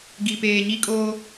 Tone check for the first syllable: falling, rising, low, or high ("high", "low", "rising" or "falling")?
low